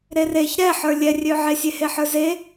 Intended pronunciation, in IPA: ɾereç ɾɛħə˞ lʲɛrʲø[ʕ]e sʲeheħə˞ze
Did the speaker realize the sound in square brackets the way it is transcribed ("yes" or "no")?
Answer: yes